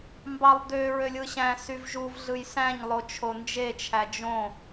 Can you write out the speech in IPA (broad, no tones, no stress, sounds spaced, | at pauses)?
m b ɑ lˠ d̪ ø ɹ ø lʲ ɯ ɕ æ̃ s y v ʒ u v ɮ ɯ j s æ̃ ɲ lˠ o t͡ʃʰ o n d͡ʒ e t͡ʃʰ æ d͡ʒ õ